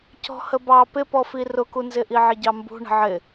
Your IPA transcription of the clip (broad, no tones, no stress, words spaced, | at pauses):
cɔ̤həbɑ pɪpɔfi rʊkunzɪʔi ʕɪɟɑmbṳ ɳə̤ʕɪ